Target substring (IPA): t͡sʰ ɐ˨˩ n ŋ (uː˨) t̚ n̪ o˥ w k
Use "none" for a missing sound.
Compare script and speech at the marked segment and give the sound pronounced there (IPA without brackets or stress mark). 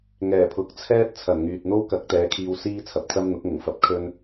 yː˨